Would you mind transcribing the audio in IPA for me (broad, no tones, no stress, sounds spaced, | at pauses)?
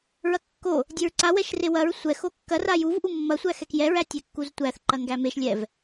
ɹ ɐ kː o | dʲ e ɹ ǀ a w ɛ ʃ r e w ɐ ɹ sʷ ɛ x o kː ɐ r a j u v ʔ u mː ɐ sʷ æ x ɛ k j ɛ ɹ æ tʲ ɛ kː u z tʷ æ θ ǃ ɐ ŋ ɡ æ m e ʃ lʲ ɛ v